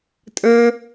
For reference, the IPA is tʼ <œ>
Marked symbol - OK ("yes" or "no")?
no